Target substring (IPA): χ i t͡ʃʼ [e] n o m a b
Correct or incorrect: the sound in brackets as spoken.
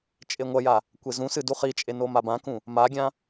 correct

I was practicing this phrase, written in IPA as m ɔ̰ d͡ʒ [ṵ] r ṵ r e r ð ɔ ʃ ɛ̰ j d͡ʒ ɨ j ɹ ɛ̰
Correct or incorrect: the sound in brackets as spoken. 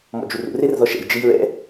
incorrect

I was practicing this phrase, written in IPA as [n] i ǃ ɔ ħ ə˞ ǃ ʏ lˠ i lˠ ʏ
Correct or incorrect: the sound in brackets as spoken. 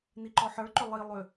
correct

